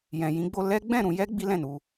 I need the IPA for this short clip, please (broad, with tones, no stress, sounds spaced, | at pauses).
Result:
j ɛ̃˨ j ĩ˨˦ ɡ͡b o˧ l ɛ˦ ɡ͡b ɛ̃˦˨ ɾ ũ˧ j ɛ˦ ɡ͡b i˦ l ɛ̃˦˨ n u˧